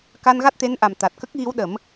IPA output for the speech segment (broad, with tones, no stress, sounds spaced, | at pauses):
k a˧ n ɣ a˦˥ t̚ t̪ e˧˥ n ʔ a˨˩ m t̪ a˨˩ t̚ k ə˦˥ k̚ ɣ i˧˥ w ɗ ə˨˩˦ m